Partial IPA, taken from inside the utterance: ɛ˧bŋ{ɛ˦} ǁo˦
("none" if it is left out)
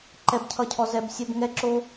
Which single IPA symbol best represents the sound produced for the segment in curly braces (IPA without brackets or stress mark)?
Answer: ɛ˧